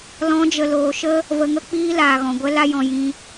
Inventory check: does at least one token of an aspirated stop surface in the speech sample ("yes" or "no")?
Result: no